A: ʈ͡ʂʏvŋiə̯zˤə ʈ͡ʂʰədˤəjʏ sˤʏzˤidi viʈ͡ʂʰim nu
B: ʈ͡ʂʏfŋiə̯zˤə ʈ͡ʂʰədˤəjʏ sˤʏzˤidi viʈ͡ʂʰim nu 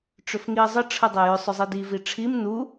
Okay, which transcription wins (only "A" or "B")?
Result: B